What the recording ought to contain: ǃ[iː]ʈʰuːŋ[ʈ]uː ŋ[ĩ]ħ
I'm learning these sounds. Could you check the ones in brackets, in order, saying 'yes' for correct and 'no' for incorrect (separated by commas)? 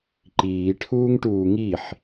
yes, yes, no